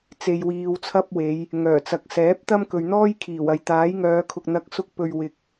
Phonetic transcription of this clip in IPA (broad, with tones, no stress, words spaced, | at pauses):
t͡se˧jwiː˧wt͡sʰɐ˥p̚we˨˧j | ŋœː˨˩t͡sɐ˨k̚ sɛː˨˥p̚t̪ɐ˥m kɵ˨ɥn̪ɔː˥jkʰiː˨˩w ɐ˨jt̪aː˨˥jŋœː˨˧kʰʊ˨k̚ n̪ɐ˨˥k̚sʊ˧k̚pɵ˨ɥ wɪ˧k̚